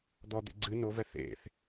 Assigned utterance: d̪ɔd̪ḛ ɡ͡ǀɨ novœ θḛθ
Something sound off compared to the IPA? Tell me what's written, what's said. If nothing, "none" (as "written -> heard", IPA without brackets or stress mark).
œ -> ɛ